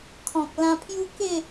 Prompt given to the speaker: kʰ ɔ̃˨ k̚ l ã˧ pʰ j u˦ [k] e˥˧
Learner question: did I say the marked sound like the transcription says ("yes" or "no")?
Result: yes